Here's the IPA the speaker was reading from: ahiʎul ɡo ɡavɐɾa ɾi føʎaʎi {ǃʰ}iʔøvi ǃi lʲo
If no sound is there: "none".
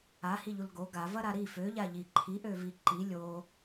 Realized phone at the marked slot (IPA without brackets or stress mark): ǃʰ